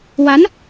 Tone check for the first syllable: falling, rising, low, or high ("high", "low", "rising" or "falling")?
rising